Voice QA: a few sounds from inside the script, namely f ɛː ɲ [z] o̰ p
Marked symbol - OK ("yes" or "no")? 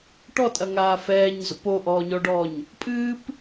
yes